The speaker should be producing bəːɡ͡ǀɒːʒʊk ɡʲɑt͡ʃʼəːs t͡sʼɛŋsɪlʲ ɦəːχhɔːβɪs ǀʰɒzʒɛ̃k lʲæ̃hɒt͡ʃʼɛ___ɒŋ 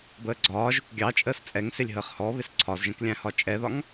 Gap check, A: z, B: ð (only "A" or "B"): B